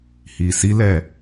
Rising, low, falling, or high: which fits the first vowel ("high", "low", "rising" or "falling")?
low